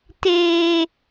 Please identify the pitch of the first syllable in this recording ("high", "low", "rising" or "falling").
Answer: high